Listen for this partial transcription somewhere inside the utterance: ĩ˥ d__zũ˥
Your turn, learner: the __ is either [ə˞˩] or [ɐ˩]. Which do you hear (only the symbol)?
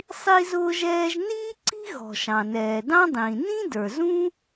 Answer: ə˞˩